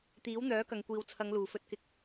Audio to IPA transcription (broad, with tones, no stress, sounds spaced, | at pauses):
t̪ iː˨˥ w n̪ œː˨˥ k ɐ˨ ŋ kʷ iː˨ w t͡sʰ ɐ˨˧ ŋ l uː˨˩ f ɵ˧ t̚ k ɪ˨ k̚